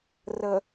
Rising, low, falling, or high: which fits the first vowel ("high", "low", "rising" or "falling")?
low